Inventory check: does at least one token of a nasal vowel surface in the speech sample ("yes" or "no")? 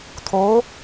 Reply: no